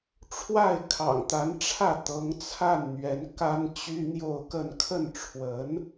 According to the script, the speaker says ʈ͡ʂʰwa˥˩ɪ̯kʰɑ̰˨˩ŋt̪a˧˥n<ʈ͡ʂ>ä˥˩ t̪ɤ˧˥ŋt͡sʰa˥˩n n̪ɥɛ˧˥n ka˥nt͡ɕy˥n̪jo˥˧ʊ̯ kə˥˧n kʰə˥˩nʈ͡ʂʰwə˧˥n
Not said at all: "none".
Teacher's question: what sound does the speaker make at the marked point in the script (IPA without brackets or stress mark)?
ʈ͡ʂʰ